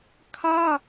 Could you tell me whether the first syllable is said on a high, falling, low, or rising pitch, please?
high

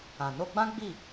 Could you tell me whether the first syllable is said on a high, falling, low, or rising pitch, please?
low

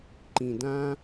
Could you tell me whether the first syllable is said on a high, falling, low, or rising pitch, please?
low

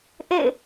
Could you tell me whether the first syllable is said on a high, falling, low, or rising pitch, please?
falling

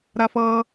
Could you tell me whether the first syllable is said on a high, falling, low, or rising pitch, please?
high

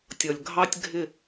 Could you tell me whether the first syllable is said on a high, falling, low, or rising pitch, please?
low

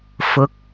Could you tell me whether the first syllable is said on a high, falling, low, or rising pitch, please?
rising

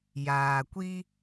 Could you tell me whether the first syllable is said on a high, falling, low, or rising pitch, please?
low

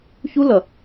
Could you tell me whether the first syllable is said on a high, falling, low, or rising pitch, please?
high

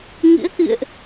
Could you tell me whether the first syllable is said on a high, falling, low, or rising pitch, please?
rising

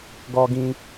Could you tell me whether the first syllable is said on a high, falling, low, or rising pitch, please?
high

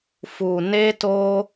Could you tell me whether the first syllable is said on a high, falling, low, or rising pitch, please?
low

